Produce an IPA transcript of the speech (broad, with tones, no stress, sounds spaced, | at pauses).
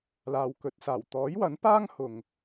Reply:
l aː˨ w k ɵ˨˥ t̚ s aː˨˩ w t̪ ɔː˨˥ j w ɐ˨˥ n p aː˥ ŋ h ʊ˨ ŋ